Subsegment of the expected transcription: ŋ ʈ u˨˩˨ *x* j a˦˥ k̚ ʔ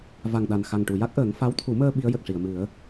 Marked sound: incorrect: none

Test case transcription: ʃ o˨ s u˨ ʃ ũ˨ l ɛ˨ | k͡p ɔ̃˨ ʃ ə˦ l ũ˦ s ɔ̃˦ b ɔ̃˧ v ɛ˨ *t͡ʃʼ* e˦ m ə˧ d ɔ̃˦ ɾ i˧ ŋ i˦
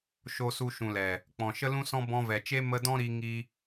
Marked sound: incorrect: t͡ʃ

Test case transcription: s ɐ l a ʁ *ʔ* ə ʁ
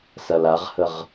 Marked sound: incorrect: h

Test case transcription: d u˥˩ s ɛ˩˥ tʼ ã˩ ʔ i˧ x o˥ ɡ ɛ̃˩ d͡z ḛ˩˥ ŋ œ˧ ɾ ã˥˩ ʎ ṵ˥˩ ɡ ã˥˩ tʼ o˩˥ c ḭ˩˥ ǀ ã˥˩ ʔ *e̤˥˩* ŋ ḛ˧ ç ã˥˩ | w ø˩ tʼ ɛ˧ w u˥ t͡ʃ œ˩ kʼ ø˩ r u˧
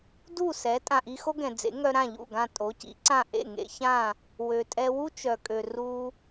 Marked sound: incorrect: ḛ˥˩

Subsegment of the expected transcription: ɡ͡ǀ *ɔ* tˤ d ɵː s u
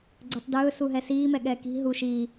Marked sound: incorrect: ɵ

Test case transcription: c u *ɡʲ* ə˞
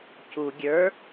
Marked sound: correct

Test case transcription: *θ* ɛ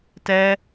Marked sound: incorrect: t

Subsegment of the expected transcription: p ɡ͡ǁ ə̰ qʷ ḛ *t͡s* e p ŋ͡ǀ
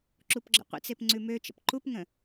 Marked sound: correct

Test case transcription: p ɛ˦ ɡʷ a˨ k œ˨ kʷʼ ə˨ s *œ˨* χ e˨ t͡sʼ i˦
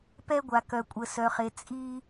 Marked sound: correct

